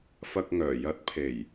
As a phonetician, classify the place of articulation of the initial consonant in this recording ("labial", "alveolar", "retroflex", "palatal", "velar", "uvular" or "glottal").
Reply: labial